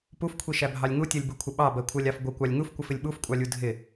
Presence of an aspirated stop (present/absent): present